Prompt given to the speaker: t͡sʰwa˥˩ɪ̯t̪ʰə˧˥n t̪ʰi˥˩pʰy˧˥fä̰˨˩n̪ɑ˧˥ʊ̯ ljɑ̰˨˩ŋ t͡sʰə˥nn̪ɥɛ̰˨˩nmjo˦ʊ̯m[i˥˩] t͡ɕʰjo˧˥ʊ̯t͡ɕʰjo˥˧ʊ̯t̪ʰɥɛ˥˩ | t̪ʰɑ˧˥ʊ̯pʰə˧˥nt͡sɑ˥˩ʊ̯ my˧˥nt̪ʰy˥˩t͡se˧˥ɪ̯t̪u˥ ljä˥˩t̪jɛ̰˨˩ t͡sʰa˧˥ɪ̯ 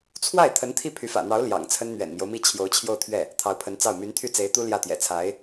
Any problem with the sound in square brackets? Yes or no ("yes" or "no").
no